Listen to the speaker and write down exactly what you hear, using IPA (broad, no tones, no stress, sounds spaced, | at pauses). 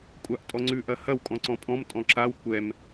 kʷʼ a ʔ tʼ ɔ ŋ͡ǀ ʉ ʔ ɐ h ɐ w kʼ ɔ̃ ǀ ɔ̃ pʼ ɔ̃ m tʼ ɔ̃ ǁ a w kʷ ɛ m